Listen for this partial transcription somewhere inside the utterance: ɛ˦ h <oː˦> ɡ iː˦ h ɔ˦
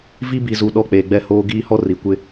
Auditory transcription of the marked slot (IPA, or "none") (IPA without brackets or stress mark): oː˦